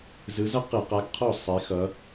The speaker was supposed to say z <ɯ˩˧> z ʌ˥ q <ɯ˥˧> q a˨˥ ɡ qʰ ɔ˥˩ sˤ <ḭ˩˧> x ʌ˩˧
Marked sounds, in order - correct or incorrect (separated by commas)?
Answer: incorrect, incorrect, incorrect